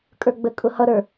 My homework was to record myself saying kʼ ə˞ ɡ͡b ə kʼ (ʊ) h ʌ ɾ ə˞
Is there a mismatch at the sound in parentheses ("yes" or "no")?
no